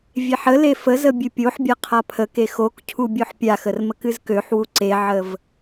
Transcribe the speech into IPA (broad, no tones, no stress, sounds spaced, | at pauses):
vʲ e ħ ə l e f ə z ə bʲ ɨ pʲ o ħ bʲ a qʰ a pʰ ə k e x o k cʰ u bʲ o ħ pʲ a x ə r m ə k ɨ z k ø ħ w u ǀ e ʕ ə v